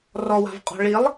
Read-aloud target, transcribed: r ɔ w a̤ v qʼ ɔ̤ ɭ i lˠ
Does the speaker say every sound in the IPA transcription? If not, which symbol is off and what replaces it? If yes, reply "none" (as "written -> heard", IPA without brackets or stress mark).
none